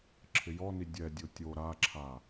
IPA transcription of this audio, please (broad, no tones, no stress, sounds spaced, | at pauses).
ǁʰ ɪ j ɔ n i dʲ ɛ dʲ o tʲ o ɾ a ǁʰ a